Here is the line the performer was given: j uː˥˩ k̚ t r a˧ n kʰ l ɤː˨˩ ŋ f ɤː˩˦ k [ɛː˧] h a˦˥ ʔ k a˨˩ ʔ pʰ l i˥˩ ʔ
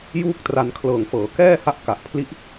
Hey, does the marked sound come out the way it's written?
no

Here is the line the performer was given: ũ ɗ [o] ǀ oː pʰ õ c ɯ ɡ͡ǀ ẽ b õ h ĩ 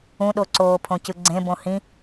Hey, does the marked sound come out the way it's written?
yes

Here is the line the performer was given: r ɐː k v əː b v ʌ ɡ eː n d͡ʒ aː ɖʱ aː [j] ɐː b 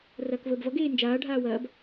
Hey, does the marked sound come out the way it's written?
no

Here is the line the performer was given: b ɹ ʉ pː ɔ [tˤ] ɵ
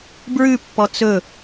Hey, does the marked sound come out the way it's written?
no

